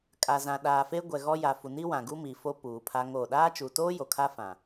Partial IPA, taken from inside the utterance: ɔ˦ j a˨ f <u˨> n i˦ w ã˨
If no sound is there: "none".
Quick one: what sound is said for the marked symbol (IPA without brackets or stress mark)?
u˨